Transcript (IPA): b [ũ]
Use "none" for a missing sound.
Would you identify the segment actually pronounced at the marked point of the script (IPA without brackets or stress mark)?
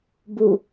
u